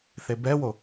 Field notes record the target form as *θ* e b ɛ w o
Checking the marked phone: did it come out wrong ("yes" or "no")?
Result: no